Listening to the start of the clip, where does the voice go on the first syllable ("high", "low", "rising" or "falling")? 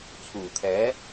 low